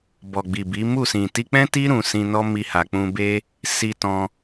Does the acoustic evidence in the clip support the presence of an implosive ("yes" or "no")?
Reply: no